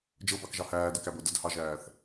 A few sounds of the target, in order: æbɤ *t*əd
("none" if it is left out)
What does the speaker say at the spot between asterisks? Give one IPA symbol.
d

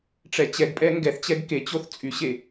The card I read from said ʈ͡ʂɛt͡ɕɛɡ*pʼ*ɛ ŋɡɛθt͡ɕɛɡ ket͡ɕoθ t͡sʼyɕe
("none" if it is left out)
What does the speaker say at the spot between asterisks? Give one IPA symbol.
pʼ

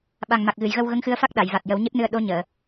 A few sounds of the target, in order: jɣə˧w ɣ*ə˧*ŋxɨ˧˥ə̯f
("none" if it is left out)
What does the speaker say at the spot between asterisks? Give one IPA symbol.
ə˧˥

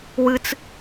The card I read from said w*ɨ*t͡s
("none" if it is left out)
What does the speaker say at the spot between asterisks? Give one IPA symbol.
ɨ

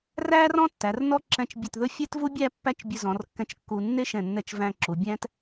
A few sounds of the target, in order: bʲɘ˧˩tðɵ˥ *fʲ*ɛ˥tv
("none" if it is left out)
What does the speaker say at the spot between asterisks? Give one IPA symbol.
fʲ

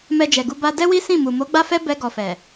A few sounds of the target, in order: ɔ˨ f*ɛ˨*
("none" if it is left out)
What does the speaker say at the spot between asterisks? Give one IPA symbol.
ɛ˨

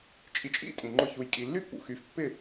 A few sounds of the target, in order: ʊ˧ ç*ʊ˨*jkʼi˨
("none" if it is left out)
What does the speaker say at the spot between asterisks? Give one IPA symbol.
u˨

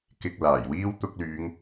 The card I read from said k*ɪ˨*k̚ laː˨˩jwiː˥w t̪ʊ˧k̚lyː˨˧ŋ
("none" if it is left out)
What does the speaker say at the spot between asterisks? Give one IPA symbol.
ɪ˧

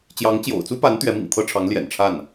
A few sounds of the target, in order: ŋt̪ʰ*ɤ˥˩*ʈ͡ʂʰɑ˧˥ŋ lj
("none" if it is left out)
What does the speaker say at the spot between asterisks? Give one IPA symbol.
ɤ˥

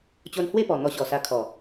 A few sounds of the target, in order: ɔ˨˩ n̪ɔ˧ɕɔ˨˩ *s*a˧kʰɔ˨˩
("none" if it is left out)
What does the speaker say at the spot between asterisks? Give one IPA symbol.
s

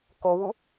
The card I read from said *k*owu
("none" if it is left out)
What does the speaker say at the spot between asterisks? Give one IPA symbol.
k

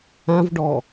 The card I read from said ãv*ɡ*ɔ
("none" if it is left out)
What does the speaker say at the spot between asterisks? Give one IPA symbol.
ɖ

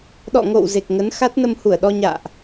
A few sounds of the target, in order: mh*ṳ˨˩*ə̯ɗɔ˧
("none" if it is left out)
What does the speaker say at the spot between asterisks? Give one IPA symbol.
u˧˩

